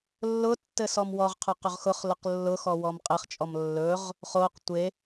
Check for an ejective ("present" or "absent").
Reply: present